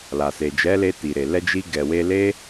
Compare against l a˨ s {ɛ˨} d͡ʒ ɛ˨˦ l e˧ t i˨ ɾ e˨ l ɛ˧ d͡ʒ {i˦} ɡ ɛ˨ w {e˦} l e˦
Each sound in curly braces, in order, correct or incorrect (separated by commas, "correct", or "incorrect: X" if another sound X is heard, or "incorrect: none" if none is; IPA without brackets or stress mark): incorrect: e˨, incorrect: i˧, incorrect: e˧